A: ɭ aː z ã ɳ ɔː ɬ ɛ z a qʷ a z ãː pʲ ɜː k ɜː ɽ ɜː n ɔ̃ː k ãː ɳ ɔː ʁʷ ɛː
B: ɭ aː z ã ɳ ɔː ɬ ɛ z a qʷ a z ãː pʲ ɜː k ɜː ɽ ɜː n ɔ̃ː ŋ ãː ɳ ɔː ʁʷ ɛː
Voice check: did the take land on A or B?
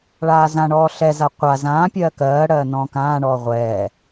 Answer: A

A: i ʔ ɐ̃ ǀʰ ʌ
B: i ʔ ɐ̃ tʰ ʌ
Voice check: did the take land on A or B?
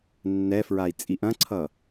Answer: A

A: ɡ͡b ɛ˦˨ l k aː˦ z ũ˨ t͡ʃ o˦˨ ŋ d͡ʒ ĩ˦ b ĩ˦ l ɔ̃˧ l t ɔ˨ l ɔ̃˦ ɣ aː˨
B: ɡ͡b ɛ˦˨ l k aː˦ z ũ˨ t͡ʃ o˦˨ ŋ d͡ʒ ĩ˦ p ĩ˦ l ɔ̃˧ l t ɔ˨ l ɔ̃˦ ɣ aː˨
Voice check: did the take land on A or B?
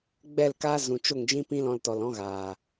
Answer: B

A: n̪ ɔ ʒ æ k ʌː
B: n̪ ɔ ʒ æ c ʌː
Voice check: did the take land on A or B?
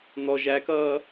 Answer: A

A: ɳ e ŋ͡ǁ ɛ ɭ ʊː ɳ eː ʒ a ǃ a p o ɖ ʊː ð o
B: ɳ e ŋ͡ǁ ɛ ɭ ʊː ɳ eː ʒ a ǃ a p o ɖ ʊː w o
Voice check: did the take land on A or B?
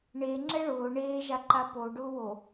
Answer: B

